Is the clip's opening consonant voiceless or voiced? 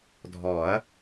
voiced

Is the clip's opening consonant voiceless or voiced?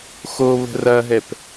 voiceless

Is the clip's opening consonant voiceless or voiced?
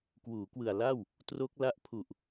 voiceless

